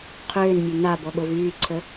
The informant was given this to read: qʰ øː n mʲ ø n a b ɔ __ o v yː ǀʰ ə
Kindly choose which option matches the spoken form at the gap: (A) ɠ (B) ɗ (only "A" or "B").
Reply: A